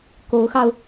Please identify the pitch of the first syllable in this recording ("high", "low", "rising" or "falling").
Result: rising